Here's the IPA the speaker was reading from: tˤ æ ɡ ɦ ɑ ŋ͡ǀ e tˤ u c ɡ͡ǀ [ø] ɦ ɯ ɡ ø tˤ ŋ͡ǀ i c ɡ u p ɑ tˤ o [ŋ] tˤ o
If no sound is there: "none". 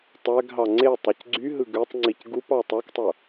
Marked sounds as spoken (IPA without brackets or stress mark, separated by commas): y, k